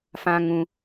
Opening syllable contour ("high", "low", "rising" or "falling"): high